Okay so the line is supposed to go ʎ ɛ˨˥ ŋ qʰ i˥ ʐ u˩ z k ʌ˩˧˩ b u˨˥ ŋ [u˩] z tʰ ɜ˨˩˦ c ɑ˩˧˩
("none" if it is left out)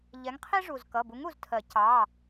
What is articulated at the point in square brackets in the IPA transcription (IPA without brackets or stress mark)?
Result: u˩